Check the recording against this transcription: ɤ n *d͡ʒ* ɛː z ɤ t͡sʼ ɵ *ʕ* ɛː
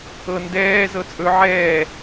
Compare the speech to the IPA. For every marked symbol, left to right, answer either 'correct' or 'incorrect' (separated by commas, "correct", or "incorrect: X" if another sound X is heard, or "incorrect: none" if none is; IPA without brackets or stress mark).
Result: incorrect: d, correct